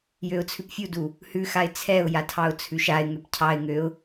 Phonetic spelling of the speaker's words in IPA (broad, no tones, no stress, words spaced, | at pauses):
jøʊ̯t͡sʰʉpfʲudu | hʉ xaɪ̯t͡sʰɛʊ̯jatʰɑʊ̯ t͡sʰʉʃaɪ̯ŋøp cʰɑɪ̯ŋøʊ̯